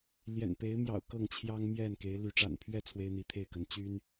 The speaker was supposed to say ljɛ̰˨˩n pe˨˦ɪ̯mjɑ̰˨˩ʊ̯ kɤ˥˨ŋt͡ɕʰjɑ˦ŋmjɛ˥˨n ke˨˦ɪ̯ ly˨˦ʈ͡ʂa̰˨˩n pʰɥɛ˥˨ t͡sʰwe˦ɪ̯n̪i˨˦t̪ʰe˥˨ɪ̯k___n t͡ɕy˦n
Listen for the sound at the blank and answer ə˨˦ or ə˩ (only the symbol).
ə˨˦